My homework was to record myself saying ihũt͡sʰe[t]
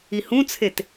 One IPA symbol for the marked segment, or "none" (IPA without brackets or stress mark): t